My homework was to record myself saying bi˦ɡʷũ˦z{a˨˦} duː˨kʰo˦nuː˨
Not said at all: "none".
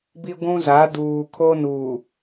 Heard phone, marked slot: a˨˦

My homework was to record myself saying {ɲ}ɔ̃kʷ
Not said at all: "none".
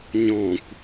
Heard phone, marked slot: ɲ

